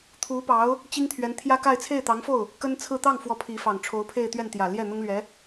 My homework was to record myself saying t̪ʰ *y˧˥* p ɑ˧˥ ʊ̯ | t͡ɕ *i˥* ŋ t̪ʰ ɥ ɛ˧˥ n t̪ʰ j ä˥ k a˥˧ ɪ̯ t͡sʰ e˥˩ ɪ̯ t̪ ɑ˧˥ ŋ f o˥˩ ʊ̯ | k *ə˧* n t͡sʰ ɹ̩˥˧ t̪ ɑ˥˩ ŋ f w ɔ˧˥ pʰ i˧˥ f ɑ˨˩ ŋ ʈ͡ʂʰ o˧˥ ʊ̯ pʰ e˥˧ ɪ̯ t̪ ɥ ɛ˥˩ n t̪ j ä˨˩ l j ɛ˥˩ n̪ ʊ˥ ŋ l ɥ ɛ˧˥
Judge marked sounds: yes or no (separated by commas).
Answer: no, yes, no